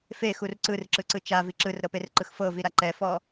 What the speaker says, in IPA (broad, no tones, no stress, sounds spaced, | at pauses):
f e x u r ǀ ɯ r ǁ ɯ ǀ ɯ t͡ʃ a v i ǁ ɯ r ɾ ɤ p e r ǃ ɯ x f ɤ v i ɾ a ǃ ɛ f ɔ